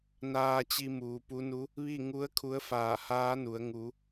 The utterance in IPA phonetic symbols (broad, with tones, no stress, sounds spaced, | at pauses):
n aː˧ t͡ɕ i˧ m uː˩˧ p u˧˥ n u˧˥ | ʋ i˥˨ ŋ u˧˥ ə̯ kʰ u˧˥ ə̯ f aː˧˩ h aː˧˥ n u˩˧ ə̯ ŋ u˩˧